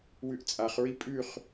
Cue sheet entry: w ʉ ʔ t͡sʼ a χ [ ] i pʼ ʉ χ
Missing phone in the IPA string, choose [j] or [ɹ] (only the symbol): ɹ